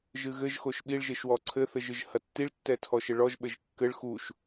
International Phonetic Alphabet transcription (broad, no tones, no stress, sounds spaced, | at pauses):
ʒ ɨ ɣ ɘ ʒ x o ʃ ɓ i ɭ ʒ e ʃ w ɔ ǀʰ ɘ θ ɘ ʒ ɨ ʒ h ɐ tː i ɭ tː ɛ tʰ ɔ ʃ ɘ ɭ ɔ ʒ ɓ ɘ ʒ kː ɘ ɭ x u ʃ